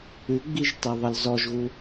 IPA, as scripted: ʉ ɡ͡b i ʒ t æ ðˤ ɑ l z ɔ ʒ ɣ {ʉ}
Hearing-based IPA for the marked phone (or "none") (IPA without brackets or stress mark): u